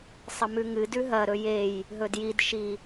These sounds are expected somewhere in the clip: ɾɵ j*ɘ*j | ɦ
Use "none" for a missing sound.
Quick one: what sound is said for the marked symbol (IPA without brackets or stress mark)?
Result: e